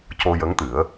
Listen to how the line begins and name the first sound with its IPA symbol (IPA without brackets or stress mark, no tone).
c